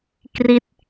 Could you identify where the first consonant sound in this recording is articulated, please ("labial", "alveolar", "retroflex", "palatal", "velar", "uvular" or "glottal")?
velar